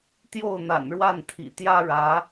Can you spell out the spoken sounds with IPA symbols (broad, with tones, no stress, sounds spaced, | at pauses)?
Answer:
t̪ j o˥˩ ʊ̯ n̪ a̰˨˩ n ɻ w a˥˩ n t̪ʰ ḭ˨˩ t̪ j ä˥ ɻ ä˧˥